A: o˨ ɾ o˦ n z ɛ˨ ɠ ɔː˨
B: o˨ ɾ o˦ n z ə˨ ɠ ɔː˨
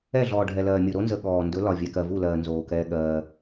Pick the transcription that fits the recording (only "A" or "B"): B